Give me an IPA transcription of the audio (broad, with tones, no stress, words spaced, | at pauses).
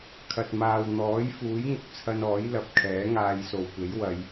kʰɐ˨t̚maː˨w n̪ɔː˨˥jfuː˨˥jŋʊ˨k̚t͡sʰɐ˧n ɔː˨˥jlɐ˨˥p̚ kʰɛː˨˥ŋaː˧jso˨wkʷe˨˥j wɐ˨˧j